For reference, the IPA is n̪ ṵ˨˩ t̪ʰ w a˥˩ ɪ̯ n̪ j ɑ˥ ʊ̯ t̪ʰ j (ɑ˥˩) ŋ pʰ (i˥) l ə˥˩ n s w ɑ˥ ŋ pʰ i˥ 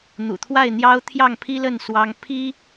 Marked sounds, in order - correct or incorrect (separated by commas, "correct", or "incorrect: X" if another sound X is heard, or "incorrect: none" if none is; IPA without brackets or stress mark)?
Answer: correct, correct